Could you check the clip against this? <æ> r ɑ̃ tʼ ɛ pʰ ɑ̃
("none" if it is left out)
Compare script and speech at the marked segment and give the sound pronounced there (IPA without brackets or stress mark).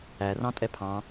æ